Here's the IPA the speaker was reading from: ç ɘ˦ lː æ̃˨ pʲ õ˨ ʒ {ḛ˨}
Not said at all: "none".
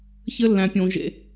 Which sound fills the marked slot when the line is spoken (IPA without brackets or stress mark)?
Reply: ḛ˨